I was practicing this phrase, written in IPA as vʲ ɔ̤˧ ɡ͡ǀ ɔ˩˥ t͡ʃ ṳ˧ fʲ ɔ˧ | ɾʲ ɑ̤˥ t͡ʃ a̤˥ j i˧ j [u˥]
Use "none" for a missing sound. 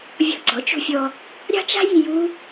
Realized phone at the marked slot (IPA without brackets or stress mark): u˥